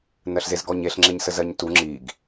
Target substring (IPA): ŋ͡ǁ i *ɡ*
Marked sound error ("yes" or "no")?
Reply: no